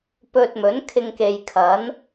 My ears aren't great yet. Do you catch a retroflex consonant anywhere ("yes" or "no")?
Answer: no